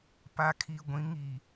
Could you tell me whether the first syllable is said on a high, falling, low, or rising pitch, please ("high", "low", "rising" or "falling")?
low